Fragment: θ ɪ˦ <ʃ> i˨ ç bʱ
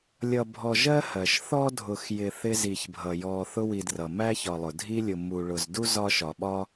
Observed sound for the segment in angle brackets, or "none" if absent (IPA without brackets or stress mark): z